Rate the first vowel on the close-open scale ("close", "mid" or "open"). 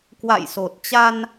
open